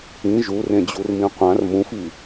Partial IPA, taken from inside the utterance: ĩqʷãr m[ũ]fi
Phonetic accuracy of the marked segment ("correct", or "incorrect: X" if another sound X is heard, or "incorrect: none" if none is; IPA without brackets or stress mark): correct